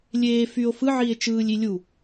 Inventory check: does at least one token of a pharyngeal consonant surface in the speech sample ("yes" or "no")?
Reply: yes